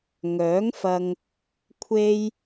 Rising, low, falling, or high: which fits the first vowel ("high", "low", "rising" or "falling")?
rising